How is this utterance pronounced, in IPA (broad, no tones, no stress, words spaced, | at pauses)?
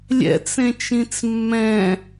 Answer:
lʲɛ̰t͡s ẽt͡ʃĩt͡smːɛ̃